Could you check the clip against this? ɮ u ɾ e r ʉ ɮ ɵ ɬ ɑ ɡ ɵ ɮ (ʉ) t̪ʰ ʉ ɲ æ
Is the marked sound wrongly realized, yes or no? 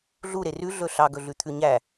no